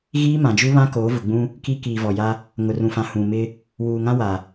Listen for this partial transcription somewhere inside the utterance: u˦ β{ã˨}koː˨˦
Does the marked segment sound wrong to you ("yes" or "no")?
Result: yes